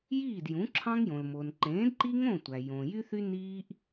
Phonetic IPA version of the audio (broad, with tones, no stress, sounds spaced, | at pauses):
j iː˥˨ d j ũ˨˥ ǁʰ ɑ̃˥ ŋ j õ˨ l m o˨ n ǃ ẽː˨˥ d ǃ i˥ ŋ õ˥˨ tʷ æ˨ j õ˨ j y˥ θ y˥ n iː˥ ʔ